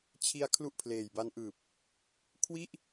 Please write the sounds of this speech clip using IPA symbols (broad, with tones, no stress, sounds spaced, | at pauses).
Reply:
t͡ɕʰ i˧ a̯ kʰ l u˥˩ ʔ pʰ l eː˨˩ j b a˦˥ n ʔ ɯː˨˩ p̚ | kʰ w i˥˩ ʔ